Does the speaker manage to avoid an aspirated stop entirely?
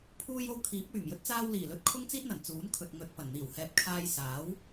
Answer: no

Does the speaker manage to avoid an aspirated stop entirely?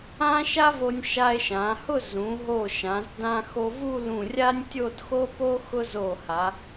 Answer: yes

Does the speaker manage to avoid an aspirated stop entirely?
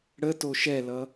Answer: yes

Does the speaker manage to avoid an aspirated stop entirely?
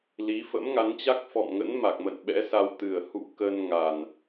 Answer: yes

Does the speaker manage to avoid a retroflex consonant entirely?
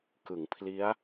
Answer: yes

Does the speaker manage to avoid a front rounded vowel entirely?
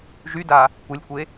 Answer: no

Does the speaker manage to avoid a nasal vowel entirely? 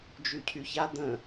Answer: no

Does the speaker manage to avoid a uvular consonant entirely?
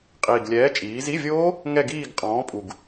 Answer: no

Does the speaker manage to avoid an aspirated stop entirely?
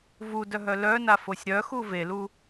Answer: yes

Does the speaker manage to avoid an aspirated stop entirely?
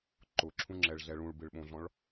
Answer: no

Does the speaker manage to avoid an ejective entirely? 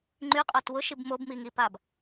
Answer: no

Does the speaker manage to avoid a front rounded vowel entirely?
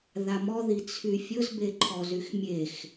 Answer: no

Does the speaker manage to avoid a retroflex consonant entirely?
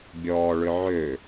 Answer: no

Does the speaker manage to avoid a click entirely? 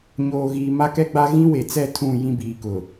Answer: yes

